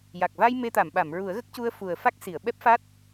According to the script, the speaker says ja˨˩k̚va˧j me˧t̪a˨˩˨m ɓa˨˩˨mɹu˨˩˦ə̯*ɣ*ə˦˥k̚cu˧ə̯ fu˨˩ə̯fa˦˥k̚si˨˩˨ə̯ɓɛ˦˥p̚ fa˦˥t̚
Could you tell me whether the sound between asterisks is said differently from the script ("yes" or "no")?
no